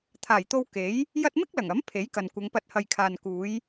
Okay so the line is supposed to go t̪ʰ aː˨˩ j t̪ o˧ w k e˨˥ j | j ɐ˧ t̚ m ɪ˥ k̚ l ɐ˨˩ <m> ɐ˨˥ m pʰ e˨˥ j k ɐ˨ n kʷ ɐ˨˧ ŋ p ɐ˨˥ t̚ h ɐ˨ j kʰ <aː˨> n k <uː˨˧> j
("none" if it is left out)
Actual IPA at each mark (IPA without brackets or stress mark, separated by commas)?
ŋ, aː˨, uː˨˧